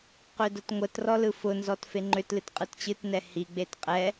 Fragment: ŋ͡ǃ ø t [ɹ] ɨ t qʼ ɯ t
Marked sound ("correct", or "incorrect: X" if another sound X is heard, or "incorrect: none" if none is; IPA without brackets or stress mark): incorrect: l